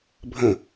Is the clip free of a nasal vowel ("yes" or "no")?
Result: no